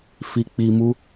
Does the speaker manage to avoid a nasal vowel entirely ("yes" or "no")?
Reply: yes